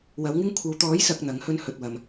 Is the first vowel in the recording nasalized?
no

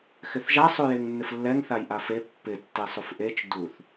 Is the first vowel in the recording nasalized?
no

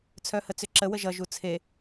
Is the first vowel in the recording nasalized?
no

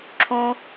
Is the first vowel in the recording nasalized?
yes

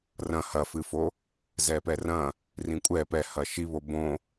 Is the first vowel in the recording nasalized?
yes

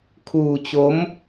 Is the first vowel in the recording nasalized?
no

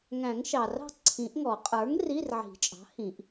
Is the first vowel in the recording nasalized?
yes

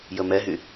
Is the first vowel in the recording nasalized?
no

